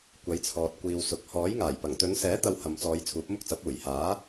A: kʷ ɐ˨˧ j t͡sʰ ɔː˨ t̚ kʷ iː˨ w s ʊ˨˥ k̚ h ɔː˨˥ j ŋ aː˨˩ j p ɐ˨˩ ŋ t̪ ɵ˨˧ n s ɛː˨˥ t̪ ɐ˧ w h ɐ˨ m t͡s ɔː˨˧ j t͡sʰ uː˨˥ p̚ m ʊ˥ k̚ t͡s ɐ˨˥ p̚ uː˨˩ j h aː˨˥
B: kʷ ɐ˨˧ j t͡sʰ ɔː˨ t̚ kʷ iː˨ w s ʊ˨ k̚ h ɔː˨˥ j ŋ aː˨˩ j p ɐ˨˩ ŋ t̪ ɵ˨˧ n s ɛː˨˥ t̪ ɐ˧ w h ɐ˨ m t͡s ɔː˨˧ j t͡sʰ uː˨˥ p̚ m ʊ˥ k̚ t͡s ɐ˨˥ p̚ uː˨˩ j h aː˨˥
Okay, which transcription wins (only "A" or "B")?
B